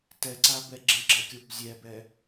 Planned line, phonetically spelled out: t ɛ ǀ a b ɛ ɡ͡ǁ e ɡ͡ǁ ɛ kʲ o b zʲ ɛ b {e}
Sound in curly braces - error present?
yes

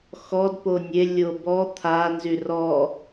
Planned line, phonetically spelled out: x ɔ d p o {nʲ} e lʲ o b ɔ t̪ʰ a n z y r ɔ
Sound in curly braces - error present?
no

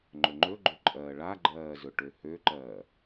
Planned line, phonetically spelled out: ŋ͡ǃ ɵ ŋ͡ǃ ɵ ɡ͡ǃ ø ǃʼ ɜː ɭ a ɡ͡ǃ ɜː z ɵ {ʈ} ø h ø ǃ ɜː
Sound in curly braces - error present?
no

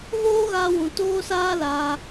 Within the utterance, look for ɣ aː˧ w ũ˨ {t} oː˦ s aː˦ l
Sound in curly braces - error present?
no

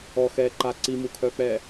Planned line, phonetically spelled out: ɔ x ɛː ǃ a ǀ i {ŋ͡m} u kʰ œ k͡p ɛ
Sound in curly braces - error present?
yes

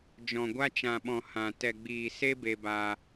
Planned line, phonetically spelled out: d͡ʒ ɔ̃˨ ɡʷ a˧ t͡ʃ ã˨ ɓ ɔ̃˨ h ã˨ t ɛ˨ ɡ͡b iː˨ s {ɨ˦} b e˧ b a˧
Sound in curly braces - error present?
yes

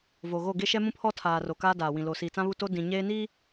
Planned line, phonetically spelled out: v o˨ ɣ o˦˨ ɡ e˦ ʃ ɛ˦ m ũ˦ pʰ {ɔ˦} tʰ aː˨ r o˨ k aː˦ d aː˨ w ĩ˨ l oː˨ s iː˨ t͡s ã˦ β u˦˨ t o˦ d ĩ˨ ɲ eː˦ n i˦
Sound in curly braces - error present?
no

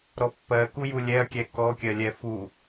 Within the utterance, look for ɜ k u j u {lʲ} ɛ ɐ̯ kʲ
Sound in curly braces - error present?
no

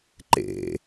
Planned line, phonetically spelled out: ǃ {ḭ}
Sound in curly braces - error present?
yes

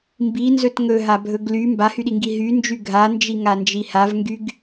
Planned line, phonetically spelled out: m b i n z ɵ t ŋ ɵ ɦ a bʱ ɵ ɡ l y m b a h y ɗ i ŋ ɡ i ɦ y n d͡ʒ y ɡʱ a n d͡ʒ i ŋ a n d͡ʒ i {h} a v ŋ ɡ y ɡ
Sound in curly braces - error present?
no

